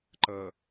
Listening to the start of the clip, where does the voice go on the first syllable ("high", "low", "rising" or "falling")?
low